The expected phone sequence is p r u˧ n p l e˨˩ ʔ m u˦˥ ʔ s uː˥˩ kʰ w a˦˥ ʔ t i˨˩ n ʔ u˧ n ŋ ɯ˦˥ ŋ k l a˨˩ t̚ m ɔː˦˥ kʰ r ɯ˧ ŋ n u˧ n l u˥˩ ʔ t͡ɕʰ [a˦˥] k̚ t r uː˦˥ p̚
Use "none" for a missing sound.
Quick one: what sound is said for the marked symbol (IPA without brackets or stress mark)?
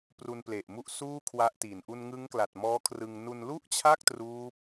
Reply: a˥˩